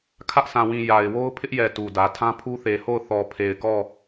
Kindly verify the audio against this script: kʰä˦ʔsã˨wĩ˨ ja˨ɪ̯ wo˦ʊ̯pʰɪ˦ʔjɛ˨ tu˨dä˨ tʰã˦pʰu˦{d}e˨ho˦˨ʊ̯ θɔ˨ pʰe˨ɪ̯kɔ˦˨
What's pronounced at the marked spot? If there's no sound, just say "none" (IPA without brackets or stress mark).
θ